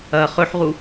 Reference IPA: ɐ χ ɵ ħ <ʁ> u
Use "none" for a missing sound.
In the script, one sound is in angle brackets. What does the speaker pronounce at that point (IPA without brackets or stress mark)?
ʁ